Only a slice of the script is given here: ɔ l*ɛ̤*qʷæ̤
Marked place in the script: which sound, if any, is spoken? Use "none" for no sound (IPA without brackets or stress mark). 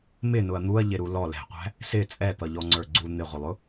ɛ̤